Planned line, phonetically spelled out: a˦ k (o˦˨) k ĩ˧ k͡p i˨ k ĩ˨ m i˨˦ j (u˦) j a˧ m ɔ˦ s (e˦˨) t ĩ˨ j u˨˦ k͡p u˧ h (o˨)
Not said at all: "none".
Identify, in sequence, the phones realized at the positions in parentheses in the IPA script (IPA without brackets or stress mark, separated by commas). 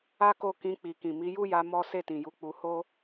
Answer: o˦˨, u˦, e˦˨, o˦